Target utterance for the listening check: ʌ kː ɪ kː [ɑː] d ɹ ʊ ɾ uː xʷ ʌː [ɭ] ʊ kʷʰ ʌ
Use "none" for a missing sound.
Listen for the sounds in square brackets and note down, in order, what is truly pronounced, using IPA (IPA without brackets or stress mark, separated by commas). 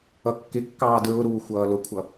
ɑː, l